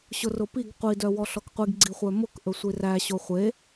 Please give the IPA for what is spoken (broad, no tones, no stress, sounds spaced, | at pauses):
ɕ ʊ r ʊ p i ɡ qʷ i d œ w ɔ ɬ ɔ k qʷ i ɡ ɡ͡ǀ i χʷ œ m ʊ k ʔ ɵ sʷ i r æ ɕ o χʷ e